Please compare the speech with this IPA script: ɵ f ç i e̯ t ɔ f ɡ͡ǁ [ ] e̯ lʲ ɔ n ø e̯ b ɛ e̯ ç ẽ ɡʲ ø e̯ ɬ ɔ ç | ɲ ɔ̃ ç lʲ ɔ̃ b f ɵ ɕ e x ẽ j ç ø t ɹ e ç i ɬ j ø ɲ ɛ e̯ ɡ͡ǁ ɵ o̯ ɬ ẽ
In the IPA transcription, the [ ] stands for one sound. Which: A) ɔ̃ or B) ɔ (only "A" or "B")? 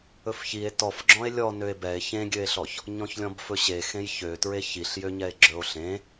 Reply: A